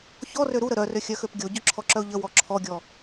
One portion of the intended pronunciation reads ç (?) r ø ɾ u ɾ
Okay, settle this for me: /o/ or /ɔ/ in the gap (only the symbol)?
ɔ